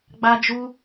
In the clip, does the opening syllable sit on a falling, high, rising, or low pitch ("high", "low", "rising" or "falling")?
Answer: high